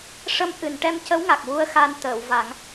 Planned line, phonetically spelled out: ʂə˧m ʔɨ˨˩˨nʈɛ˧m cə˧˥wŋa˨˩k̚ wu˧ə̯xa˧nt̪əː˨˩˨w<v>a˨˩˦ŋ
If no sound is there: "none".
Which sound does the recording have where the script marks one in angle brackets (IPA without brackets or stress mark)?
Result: v